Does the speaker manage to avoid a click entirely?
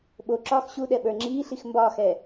no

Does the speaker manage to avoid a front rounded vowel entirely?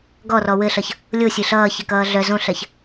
no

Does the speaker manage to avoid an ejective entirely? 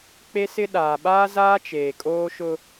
no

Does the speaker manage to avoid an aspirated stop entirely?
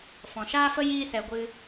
yes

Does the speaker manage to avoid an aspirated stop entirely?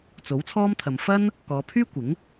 no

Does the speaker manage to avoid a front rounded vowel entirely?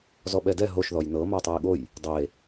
yes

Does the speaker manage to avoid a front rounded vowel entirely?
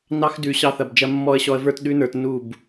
yes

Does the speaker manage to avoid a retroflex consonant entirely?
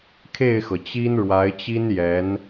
no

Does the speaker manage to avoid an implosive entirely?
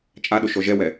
no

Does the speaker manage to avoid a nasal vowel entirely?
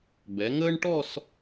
yes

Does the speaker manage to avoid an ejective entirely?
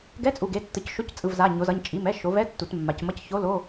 no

